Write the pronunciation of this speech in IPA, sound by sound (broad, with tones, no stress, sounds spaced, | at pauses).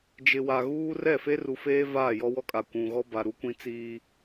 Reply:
d͡ʒ ɪ˨ w a˨ ɣ uː˦ r ɛ˦˨ f e˦ r u˨ f eː˦ v aː˦˨ j ɔ˦ w ɔ˦ kʼ a˨ kʷ ũ˨ ɣ ɔ˦ b a˨ ɾ u˦ kʷ ĩ˦ t͡s iː˦